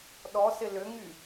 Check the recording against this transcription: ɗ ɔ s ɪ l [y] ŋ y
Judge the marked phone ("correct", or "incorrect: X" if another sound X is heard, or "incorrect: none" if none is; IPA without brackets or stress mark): incorrect: ʏ